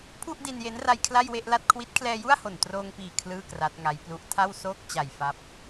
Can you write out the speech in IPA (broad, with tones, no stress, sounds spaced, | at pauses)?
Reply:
pʰ u˥˩ ʔ d i˧ n j e˦˥ n r a˧ j kʰ l a˥˩ j w e˥˩ ʔ l a˥˩ t̚ kʰ w i˦˥ t̚ kʰ l ɛː˧ j u˥˩ a̯ h o˨˩ n t r oː˧ ŋ p iː˨˩ kʰ l ɯː˥˩ k r a˦˥ t̚ ŋ a˦˥ j p l u˦˥ ʔ tʰ a˥˩ w s oː˥˩ k̚ t͡ɕ a˨˩ j f a˦˥ p̚